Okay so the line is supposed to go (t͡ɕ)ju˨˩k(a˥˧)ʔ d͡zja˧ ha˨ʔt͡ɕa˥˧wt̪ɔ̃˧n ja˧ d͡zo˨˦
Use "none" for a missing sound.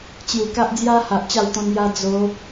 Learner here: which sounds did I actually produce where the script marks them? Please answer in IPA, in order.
t͡ɕ, a˦

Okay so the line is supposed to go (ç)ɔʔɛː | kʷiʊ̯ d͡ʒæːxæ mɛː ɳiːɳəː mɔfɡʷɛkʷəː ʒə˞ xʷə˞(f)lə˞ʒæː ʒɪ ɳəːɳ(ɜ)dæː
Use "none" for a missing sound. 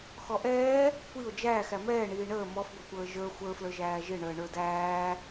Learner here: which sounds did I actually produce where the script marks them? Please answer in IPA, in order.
x, f, ə˞

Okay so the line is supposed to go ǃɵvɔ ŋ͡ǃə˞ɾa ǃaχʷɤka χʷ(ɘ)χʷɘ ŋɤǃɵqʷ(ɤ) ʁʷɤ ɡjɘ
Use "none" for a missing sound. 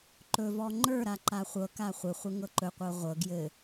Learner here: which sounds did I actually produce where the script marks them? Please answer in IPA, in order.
ɘ, ɤ

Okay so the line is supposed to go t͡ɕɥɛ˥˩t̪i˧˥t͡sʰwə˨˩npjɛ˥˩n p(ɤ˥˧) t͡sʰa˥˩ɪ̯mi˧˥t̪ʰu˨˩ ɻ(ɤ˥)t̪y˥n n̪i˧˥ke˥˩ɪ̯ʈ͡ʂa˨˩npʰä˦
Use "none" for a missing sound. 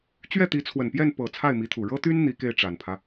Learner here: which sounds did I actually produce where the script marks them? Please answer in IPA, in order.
ɤ˨˩, ɤ˥

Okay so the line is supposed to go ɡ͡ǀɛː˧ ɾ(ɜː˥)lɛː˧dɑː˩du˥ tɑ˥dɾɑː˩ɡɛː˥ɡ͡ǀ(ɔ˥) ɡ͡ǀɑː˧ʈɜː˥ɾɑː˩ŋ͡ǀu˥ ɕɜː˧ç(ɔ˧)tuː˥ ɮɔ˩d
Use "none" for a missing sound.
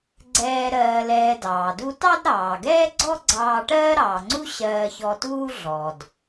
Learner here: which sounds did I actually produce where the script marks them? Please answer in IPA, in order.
ɜː˧, ɔ˥, ɔ˧

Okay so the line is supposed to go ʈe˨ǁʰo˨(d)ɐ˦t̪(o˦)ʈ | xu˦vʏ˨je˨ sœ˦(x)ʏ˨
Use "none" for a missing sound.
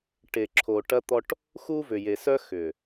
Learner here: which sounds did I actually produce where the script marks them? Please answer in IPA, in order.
ʈ, ɔ˦, x

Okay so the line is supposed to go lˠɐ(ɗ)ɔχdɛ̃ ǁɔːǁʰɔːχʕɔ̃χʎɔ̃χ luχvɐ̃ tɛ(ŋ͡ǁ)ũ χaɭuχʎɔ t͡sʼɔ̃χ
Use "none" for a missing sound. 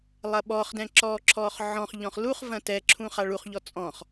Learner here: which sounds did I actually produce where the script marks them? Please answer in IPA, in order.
ɓ, ǁʰ

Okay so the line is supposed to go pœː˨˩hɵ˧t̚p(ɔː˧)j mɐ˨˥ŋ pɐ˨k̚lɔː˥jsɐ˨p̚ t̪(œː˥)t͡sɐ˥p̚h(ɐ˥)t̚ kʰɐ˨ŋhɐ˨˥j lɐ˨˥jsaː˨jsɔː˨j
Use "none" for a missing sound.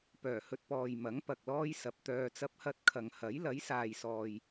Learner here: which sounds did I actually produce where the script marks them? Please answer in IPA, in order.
ɔː˨, œː˧, ɐ˥

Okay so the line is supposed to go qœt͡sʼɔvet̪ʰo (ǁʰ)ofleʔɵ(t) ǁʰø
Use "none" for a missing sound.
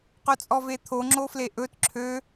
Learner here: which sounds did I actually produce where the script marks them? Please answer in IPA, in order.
ŋ͡ǁ, t

